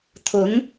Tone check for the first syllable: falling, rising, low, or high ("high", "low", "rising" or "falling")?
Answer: rising